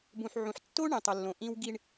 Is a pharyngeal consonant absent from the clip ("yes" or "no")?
no